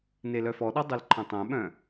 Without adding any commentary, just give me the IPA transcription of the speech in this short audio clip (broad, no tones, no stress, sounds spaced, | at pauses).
n e l œ f ɔ ɗ ɔ dˤ ø l ǃʰ ɐ̃ tˤ œ̃ ɓ œ̃